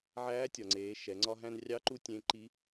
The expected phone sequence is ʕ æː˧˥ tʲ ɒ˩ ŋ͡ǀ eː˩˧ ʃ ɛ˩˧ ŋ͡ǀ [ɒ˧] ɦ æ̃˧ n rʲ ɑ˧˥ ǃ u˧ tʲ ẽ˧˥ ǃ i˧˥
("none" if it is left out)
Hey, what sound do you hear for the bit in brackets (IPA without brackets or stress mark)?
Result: ɒ˧